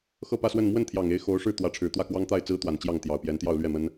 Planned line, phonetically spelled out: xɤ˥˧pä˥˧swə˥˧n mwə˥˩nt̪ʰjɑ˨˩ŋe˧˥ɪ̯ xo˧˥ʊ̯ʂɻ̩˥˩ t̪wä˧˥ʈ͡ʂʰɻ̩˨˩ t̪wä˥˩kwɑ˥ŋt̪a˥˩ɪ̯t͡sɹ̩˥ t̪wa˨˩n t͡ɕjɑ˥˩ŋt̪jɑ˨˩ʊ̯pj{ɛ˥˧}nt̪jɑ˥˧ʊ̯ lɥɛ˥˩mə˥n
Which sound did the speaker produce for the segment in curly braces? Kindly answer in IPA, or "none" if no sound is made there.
ɛ˧˥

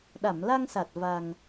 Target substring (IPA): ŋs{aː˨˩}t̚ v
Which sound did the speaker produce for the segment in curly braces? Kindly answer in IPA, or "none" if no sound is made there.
a˨˩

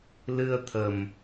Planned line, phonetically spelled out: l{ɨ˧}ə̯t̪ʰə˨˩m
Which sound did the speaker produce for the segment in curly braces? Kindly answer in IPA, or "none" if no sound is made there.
ɨ˧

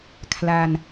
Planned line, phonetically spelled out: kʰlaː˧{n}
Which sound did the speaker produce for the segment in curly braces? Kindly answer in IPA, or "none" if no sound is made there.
n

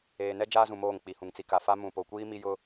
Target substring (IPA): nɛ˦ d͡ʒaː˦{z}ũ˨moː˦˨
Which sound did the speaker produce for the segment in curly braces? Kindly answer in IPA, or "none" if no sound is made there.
z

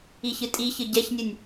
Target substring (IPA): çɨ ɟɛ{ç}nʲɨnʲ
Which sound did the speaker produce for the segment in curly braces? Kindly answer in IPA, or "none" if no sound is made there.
ç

